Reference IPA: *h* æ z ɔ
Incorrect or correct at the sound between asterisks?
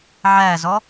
incorrect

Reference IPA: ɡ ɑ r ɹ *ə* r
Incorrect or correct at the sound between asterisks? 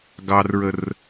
correct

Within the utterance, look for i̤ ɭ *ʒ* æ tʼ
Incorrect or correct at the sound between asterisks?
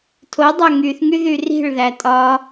incorrect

